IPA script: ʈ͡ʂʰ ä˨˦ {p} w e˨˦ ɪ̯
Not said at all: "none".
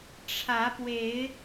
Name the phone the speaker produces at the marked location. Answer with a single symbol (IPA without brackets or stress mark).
p